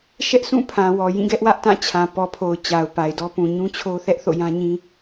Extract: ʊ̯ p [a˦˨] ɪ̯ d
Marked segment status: incorrect: a˨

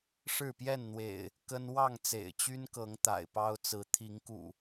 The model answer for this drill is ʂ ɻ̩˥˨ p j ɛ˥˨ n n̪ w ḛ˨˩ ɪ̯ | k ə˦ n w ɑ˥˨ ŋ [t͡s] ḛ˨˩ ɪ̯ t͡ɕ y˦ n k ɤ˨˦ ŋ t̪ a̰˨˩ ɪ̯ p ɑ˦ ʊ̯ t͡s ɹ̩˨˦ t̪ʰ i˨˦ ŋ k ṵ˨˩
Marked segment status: correct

